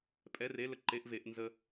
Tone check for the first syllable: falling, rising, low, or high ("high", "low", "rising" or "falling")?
rising